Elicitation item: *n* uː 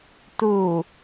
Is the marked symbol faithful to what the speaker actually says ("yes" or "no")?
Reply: no